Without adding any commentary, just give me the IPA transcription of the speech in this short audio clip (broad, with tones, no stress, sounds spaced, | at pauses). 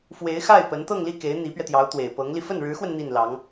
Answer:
f w e˧˥ ɪ̯ x a˥˩ ɪ̯ p ə˧˥ n t̪ ɤ˥˧ ŋ l i˥˩ k e˧˥ ɪ̯ n̪ i˧˥ p ɥ ɛ˧ t̪ j ɑ˧˥ ʊ̯ t̪ w e˨˩ ɪ̯ p ɤ˧˥ ŋ l i˧ f ə˥˩ n ɻ ɻ̩˧˥ x w ə˧ n n̪ i˥˩ n l ɑ˧˥ ŋ